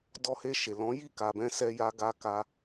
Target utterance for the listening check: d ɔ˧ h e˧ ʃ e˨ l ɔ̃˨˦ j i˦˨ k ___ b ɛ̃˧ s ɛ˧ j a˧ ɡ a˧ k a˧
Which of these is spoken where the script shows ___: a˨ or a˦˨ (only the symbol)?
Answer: a˨